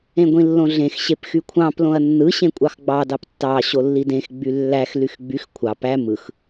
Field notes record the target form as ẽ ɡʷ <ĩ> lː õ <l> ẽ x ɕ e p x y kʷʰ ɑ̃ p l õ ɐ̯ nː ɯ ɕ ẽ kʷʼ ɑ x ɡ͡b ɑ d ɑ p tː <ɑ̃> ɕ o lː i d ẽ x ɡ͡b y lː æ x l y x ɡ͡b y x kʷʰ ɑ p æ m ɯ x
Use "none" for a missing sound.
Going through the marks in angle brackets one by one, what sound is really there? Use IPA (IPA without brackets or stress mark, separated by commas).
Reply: ĩ, ɮ, ɑ